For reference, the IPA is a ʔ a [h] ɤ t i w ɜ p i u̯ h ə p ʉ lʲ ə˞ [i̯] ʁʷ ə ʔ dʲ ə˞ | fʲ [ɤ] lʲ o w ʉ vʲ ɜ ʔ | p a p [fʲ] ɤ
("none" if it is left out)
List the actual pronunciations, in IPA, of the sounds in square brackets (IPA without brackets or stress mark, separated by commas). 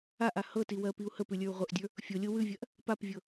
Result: h, u̯, o, vʲ